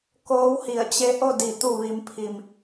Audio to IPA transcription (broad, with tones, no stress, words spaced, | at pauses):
koː˧˥whi˧˩ə̯ t͡ɕe˧˥ʔo˥˨di˧˩ t̪u˧˩ʋi˩˧mpʰi˩m